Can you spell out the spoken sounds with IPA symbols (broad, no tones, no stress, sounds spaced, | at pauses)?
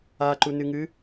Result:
a ǃ u n ɨ ŋ ɨ